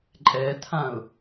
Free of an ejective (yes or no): no